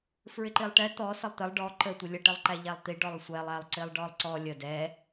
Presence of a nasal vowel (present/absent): absent